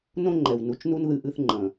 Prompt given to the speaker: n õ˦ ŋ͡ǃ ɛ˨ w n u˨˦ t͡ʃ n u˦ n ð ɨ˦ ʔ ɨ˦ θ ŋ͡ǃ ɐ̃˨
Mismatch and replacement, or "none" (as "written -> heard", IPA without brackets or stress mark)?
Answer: none